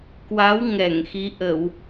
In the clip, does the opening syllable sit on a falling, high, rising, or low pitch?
rising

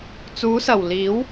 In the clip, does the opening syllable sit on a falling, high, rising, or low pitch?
rising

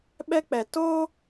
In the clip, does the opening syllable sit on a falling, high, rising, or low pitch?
high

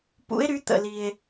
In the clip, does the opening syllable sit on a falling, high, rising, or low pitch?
rising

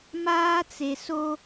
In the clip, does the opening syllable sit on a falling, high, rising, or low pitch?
high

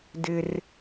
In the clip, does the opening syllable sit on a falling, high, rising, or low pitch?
high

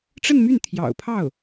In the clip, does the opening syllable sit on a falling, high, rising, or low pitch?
falling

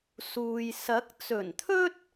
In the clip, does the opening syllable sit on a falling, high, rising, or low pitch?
low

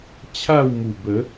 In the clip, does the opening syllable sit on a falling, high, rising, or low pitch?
falling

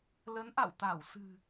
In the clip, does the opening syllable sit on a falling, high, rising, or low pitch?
rising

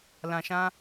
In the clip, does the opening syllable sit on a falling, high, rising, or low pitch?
low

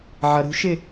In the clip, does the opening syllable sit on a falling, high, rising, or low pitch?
low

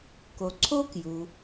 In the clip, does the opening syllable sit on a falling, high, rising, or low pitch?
low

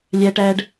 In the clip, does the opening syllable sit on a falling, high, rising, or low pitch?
high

